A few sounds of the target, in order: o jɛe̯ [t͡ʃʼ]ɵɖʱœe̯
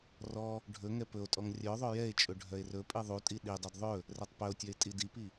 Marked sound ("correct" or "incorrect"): correct